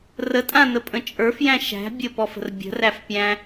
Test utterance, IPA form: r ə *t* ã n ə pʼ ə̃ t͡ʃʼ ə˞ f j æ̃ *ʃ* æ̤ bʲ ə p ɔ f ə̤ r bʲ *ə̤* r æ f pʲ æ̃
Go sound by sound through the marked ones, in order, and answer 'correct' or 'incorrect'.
incorrect, correct, correct

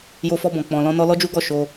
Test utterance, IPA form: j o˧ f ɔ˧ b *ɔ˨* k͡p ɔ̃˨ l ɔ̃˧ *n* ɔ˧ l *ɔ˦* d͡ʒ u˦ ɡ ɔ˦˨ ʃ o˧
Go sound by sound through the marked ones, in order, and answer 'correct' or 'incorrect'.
incorrect, correct, correct

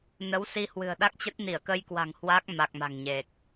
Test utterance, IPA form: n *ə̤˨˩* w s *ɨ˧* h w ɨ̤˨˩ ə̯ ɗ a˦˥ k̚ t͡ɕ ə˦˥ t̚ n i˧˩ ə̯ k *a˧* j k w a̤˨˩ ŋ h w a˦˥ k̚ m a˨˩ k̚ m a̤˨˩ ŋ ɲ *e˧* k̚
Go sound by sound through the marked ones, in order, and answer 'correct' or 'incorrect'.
incorrect, incorrect, incorrect, incorrect

